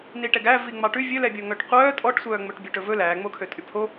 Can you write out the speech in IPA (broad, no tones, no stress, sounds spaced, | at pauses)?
n i ʈ ɛ ɡ æ v i ŋ͡m ɑ ʈ ʉ vʲ ɵ l ɛ bʲ o ŋ œ ʈ qʷ œː tʼ ɔ ʈ sʷ œː ŋ͡m ɵ ʈ bʲ ʉ ʈ ɵ v ɵ l æː ŋ͡m o kʰ ø tʼ y pʰ o